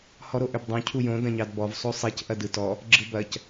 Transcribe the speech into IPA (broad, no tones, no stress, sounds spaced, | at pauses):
h ɔ ɾ o ʔ ø b dˤ õ cʰ u j õ d ɐ̃ ɲ ɑ d b ɔ v sˤ o sˤ i c ʔ ɐ d ɯ t ɔ | ɡ͡ǁ ɯ b ɐ c